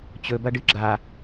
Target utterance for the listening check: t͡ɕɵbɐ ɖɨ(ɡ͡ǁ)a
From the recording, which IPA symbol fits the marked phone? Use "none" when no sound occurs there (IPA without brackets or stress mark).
ɡ͡ǁ